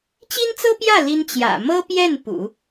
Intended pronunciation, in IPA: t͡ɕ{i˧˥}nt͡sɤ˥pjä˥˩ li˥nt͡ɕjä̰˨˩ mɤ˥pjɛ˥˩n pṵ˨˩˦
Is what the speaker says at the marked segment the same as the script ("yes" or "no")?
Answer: no